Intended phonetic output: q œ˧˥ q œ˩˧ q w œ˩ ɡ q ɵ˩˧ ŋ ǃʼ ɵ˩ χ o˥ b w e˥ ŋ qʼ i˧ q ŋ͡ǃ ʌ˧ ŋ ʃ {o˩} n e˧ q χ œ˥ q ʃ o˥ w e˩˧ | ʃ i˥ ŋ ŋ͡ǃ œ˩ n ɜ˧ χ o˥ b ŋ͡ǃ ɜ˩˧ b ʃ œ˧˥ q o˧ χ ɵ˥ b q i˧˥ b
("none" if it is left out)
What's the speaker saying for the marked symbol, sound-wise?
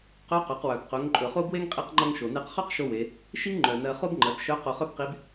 o˩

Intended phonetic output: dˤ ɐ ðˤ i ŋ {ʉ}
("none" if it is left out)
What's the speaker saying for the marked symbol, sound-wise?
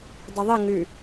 ʉ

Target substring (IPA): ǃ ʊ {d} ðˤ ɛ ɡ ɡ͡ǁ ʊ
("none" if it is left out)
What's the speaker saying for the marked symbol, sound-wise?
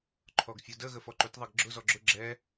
t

